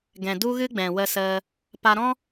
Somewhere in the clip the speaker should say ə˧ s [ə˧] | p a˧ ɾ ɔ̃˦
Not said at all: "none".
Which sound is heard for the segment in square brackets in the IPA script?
ə˧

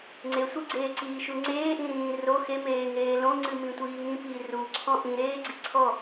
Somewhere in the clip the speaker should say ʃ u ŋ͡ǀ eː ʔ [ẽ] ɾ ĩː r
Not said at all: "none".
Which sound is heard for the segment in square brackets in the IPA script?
ĩ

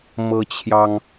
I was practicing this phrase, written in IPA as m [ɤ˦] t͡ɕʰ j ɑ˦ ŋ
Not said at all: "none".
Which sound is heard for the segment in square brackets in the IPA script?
ɤ˦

